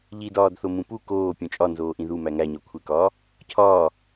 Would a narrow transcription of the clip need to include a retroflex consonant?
no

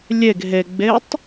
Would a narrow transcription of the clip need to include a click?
no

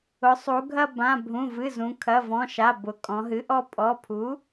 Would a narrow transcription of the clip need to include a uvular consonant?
no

